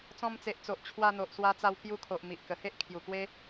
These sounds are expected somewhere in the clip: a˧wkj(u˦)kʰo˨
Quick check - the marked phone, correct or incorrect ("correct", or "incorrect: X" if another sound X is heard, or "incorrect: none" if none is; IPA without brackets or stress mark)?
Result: incorrect: u˧